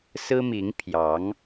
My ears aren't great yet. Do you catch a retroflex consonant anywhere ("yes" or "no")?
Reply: no